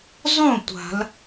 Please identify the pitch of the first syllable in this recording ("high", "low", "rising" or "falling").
falling